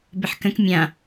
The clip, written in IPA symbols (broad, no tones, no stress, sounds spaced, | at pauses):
b ɪ ħ k ə̃ k mʲ ã